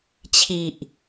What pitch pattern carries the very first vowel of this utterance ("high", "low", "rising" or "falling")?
low